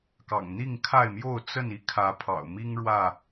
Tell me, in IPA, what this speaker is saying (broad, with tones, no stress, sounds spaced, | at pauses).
k ɑ̰˨˩ ŋ n̪ i˥˨ ŋ kʰ a˥˨ ɪ̯ m j o˥˨ ʊ̯ t͡s ə˥˨ n i˥˨ kʰ ä˨˦ pʰ ɑ̰˨˩ ʊ̯ m i˦ ŋ ɻ w ä˥˨